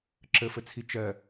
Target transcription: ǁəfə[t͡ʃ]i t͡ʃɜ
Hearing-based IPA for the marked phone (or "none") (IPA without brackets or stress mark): t͡sʰ